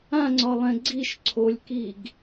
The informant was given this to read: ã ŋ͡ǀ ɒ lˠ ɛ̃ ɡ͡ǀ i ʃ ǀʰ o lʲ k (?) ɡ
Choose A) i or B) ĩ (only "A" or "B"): A